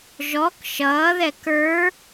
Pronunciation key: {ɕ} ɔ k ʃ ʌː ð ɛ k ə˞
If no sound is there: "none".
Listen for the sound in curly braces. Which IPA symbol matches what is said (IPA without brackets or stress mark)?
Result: ʒ